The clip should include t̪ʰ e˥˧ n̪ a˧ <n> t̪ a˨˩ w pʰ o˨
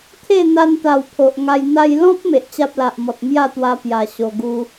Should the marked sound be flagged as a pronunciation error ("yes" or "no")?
no